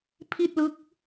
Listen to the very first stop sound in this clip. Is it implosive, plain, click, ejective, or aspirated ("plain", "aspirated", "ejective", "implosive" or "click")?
aspirated